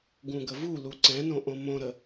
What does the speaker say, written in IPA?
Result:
ɡũɡəvulu ǀɛ̃nõ ʔõmõɾə

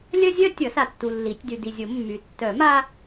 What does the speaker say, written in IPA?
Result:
lʲœ˥zʲœ˥ tʲʌ˨˩˦ sa˨tːu˨ lːi˨˩˦tʲ dy˨di˨zʲo˨˩˦ mːy˨ tːœ˨˩˦ ma˥

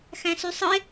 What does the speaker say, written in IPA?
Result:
xæ̃sysˤɯe̯

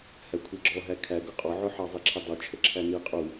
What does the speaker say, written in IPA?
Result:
hækʷʰɛɡ͡ǁɔɦæ kʰæɡʊ qʼɔʕʊħɑ zˤɛǁʰɛdˤə˞ t͡ʃʰəǁʰæni qʼu

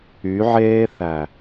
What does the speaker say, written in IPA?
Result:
y˨˦ʕeː˦θæ˨

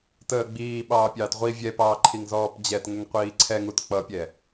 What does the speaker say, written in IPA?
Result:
təːɡ͡biː ɓɑːpʲɑːtʁʷi vʲɛpɑːǃʰiŋ zɔːpd͡ʑɛt ŋəŋqʷiːǀʰɛŋut k͡pʌpʲɛ

